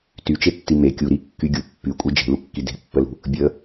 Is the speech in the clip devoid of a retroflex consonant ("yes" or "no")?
yes